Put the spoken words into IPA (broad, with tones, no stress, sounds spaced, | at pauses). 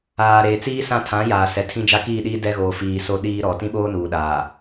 aː˨ ɾ eː˨ t͡s iː˦ s ã˦˨ tʰ ã˨˦ j aː˨ s ɛ˨ tʰ ĩ˦ d͡ʒ a˦ k iː˦˨ ɗ iː˦ d ɛ˦ ɣ oː˨ f iː˨ s o˦ ɗ iː˦ ɾ ɔ˨ t ĩ˦ ɓ oː˦ n uː˨ ɗ aː˨